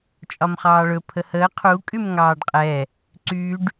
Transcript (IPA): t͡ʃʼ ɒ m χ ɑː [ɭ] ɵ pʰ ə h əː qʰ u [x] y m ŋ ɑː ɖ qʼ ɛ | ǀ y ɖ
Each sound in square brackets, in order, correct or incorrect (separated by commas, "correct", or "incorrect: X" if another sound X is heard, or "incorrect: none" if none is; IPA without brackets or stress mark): correct, incorrect: kʼ